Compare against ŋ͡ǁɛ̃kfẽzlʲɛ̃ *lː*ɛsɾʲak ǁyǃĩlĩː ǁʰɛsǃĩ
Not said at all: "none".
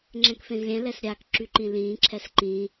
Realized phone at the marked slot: l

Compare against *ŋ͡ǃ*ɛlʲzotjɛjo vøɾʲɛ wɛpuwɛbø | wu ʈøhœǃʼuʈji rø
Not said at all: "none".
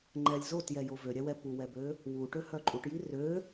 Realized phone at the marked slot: ŋ͡ǃ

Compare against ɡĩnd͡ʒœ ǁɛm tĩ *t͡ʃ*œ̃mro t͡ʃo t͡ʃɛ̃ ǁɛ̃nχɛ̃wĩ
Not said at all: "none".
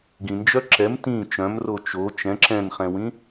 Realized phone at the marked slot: t͡ʃ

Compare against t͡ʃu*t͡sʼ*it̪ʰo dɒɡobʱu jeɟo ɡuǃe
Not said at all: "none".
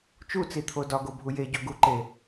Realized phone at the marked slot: t͡s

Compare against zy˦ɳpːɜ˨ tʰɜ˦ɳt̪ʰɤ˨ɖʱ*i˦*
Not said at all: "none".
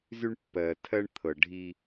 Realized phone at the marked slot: i˦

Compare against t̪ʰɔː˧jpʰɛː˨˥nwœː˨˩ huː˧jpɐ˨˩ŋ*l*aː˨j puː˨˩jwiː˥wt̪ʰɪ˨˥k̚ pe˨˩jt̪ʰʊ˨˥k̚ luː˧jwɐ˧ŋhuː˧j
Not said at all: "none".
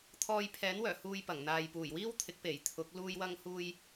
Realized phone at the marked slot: n̪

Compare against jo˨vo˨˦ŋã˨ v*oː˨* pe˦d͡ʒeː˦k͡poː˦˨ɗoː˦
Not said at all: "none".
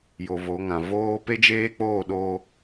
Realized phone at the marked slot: oː˦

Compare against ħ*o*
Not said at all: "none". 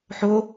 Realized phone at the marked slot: o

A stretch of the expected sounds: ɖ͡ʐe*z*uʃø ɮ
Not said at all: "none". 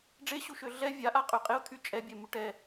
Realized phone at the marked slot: ɕ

